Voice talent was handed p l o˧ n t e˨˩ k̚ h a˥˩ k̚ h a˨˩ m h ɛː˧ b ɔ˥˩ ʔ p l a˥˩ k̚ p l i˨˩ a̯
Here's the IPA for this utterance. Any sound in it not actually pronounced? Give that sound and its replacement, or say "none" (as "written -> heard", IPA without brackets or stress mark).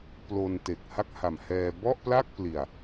none